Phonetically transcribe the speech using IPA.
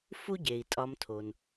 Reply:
f u˦ ɟ e˩ i̯ tʼ ɒ˨ m tʰ o˩ n

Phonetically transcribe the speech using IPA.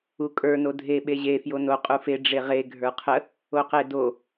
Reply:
u kʼ ə˞ n o dʱ e ɓ e ʑ e f j o n o qʼ u f e ɖ͡ʐ e ʁ e ɡʱ ə˞ qʰ ə | o q e d o

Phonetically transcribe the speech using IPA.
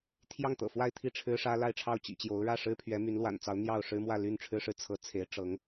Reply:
t̪ʰ j ɑ˥˩ ŋ t̪ ɤ̰˨˩ f w a˥˧ ɪ̯ t̪ʰ i˥˩ ʈ͡ʂʰ ɻ̩˥ ʂ ä˥ l a˥˧ ɪ̯ ʈ͡ʂʰ ɑ˥˩ ʊ̯ t͡ɕ ḭ˨˩ t͡ɕ j o˧˥ ʊ̯ ɻ ä˥˩ ʂ ɻ̩˥ pʰ ɥ ɛ˧˥ m y˧˥ n l w a̰˨˩ n t͡s ɑ˧˥ ʊ̯ n̪ j ɑ˥˩ ʊ̯ ʂ ɻ̩˥ m w ä˥˧ l y˥˩ n ʈ͡ʂʰ ɻ̩˥ ʂ ɻ̩˥˩ t͡sʰ ɤ˧˥ t͡sʰ e˧˥ ɪ̯ ʈ͡ʂ ɤ˧˥ ŋ

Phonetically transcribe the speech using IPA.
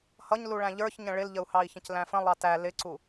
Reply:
h ʌ ɲ l u ɭ æ̃ ʎ ə˞ ç ɲ ə̃ ɭ ɪ l ʎ ə u̯ h ɑ i̯ ç ə̃ c l æ̃ f ə̃ lˠ ɑ t æ l ɪ ǀ u

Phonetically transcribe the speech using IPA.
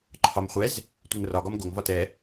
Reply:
ǃʰ ɒ m χʷ ɛ z | tʷ ɪ ŋ r ɒ ɡ ɒ m ɡ o ŋ v ɒ t ɛ

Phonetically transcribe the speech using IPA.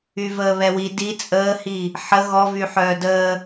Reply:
y v əː β ɛ w i d i t͡sʼ əː h i | ħ ə ɣ ɔ v y ħ œː d əː

